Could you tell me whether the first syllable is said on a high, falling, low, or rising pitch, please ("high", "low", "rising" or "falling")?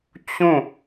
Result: falling